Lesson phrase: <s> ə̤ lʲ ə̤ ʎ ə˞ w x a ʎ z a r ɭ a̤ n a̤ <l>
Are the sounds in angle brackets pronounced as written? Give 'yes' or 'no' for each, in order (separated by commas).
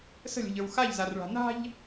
yes, no